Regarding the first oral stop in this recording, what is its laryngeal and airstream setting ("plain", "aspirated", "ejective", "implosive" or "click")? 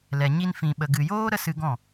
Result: implosive